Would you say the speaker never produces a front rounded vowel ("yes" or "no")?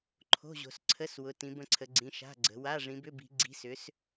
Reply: no